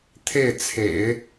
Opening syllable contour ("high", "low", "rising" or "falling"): falling